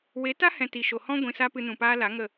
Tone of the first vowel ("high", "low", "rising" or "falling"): rising